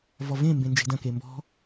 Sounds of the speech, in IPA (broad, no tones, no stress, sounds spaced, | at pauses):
v ɔ v ẽ m b ẽ n d͡ʒ e̤ d ɐ̃ k e m b ɔ̤